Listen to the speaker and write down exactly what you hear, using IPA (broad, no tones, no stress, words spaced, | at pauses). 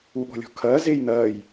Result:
uɠɔ̤lʲɔ̤kʰɐː zeːjn̪ɐːj